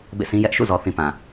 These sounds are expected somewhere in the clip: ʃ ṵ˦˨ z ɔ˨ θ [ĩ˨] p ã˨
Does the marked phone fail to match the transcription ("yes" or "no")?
no